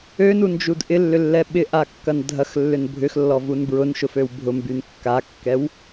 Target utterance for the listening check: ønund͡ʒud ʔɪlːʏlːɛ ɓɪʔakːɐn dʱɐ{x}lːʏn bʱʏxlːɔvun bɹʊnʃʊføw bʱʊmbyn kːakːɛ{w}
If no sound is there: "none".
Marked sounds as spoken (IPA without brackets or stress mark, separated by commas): x, w